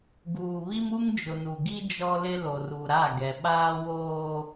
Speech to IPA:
ɡ uː˨ β i˦ m u˦ ŋ d͡ʒ ʊ˨ n u˨ ɡ i˦ d͡ʒ ɔ˦ l ɪ˦ l o˨ r u˨ ɾ a˦˨ ɡ ɛ˨ ɓ aː˦ w oː˦

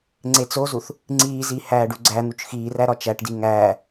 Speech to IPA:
ŋ͡ǀ e t͡s o z u θ | ŋ͡ǀ iː z i h æː ɖ u ɡ͡ǀ æ n̪ u t͡ʃ x iː r æ ɾ ɒ t͡ʃ æ ʈ d i ŋ æː

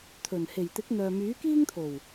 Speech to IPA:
t̪ʰ ɵ˨˩ n h e˨˩ j t̪ ɪ˨˥ k̚ n̪ œː˨ m yː˨˥ k iː˥ ŋ t̪ʰ o˨˩ w

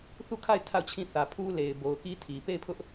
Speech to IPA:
θ u˦˨ kʰ a˦˨ ɪ̯ tʰ a˦˨ ʊ̯ t͡ɕʰ ĩ˦˨ θ ä˨ pʰ u˦ l e˨ ɪ̯ b o˨ ʊ̯ k i˦ tʰ i˨ p e˦˨ ɪ̯ pʰ ʊ˦ ʔ

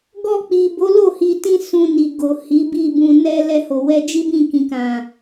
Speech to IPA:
ɡ ɔ˧ k͡p i˨ b o˨˦ l o˦˨ h i˧ t ĩ˦ s ũ˧ n i˨ ɡ o˨ h i˨˦ b i˦˨ b ũ˧ n ɛ˧ l ɛ˧ h o˨ w ɛ˧ d͡ʒ i˦ b ĩ˦˨ k ĩ˨ k ã˨

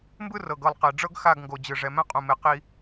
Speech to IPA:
m b ɯ˦ r ɤ˨ ɡ ɤ˦˨ lˠ q e˨ ɖ͡ʐ ɤ˦ ɡ x a˦˨ ɡ ŋ ɡ o˨ d͡ʑ ɯ˨ ʐ ɛ˨ m ɛ̃˦ qʼ ũ˨ m e˨ q i˦

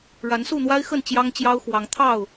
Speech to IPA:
ɻ a˨˦ n s u˥˨ n̪ w a˦ ɪ̯ x ə˥˨ n t͡ɕ j ɑ˦ ŋ t͡ɕ j ɑ˦ ʊ̯ x w ɑ˨˦ ŋ t̪ʰ ɑ˥˨ ʊ̯

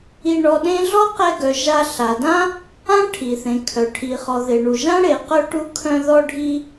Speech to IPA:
i˧ ɳ ɔ˧ ɗ ẽ˥ ɮ ɔ˥ q ɛ˧ ɡ œ˩ ʒ a˧ ɬ a˩ d ã˥ | ã˥ ʈʰ i˩ θ ẽ˩ kʰ œ˩ ʈʰ i˩ χ ɔ˩ ð e˩ ɳ u˩ ʒ ã˥ ɽ e˩ q œ˧ ʈ u˧ kʰ œ̃˧ ð ɔ˧ ɖʱ i˧

